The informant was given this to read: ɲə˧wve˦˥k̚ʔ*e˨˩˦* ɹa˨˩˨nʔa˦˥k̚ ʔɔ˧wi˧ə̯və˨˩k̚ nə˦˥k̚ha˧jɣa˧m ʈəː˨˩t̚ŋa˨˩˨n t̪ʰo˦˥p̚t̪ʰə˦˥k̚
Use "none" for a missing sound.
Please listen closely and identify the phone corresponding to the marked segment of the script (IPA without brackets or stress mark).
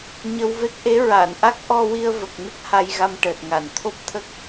e˧˥